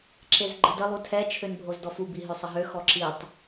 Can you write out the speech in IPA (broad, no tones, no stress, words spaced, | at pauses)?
ǁezɡ͡ǃədə lˠutʰɛ t͡ʃʰønbʱozdɔfu biɦøsˤəɦø xɔǁitˤ